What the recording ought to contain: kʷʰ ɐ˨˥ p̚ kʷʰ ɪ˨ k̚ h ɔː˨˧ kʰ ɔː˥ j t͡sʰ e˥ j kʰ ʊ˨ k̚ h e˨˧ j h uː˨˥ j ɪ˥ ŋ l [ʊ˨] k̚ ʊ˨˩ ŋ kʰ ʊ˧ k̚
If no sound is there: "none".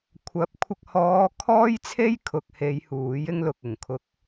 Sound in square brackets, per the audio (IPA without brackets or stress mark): ʊ˨